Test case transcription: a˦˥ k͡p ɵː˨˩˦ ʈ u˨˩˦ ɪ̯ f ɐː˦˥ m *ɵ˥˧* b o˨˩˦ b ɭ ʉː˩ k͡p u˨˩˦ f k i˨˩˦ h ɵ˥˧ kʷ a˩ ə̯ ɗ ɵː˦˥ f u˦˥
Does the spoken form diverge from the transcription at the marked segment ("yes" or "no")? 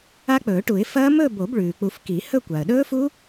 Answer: no